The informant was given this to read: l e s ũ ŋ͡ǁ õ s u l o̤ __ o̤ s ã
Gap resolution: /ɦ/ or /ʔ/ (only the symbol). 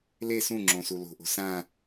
ʔ